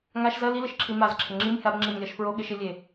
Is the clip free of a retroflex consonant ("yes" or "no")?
yes